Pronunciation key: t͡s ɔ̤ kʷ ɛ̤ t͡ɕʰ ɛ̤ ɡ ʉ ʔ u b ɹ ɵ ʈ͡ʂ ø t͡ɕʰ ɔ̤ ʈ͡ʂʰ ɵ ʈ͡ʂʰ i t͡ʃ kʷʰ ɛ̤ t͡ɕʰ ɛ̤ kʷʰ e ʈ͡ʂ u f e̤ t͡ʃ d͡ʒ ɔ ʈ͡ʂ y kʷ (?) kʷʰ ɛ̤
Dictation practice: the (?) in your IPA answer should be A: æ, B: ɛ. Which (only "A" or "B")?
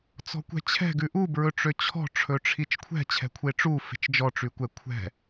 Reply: B